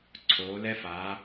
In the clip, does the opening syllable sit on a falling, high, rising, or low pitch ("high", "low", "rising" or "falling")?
rising